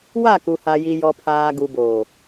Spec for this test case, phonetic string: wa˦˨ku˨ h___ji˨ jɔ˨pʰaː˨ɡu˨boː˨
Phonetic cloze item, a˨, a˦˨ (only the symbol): a˨